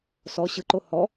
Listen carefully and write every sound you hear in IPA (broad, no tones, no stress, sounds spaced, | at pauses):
s ɔ ɕ ɯ ǃ o h ɔ